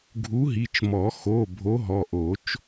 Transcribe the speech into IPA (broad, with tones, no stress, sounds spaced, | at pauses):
ɡʱ u˨˥ ɦ i˩˧˩ t͡ʃ m ɔ˨˩˦ x o˩˧˩ bʱ o˨˥ ɦ ɔ˩˧˩ ʔ o˨˩˦ t͡ʃ